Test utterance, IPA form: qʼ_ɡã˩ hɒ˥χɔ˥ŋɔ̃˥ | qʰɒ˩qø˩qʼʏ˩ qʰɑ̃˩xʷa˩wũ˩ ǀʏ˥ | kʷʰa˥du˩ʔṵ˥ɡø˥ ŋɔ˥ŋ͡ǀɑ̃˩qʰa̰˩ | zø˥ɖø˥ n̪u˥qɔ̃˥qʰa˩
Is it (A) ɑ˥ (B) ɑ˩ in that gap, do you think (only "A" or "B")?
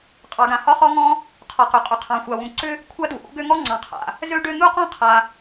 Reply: B